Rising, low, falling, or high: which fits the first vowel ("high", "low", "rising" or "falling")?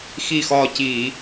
falling